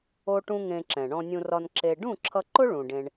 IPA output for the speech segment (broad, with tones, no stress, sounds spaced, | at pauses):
o˦ ʈ ũ˦ ŋ ẽ˧ ǁ ɛ̃˨ ɳ ɔ̃˧ nʲ ũ˧ r ɒ˧ n ǁ e˧ ɖ ũ˦˨ ǁʰ ʌ˧ ǃ ʊ˦ ɭ ũ˨ ɖ ẽ˧ ɳ